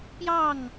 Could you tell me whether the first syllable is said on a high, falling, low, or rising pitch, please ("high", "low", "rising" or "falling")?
falling